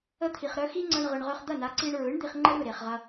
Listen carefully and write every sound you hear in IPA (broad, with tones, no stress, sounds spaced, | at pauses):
ə˧ t̪ʰ i˩ χ ɾ œ˧ x i˥ ŋ͡ǀ ɐ˧ ɳ ʁ ɯ˩ ɳ ʁ œ˧ χ d̪ ɐ˥˩ n a˩˥ ǀ i˧ ɳ ɹ ɯ˩˥ ɳ d̪ i˧ χ ŋ͡ǃ ə˥ ɾ ɯ˥˩ ɾ e˩ χ ʁ ɐ˧